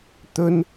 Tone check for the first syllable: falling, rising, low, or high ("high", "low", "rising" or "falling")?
high